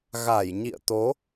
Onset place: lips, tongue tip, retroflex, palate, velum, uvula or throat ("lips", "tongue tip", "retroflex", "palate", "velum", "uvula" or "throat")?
velum